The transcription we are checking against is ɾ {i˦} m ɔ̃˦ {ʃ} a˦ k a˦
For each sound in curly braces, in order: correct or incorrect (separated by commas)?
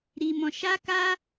correct, correct